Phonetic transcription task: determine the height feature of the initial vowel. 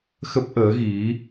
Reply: mid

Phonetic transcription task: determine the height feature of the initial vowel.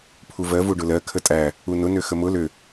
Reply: high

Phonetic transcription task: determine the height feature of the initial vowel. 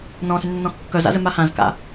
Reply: mid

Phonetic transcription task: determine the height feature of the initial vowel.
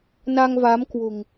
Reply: low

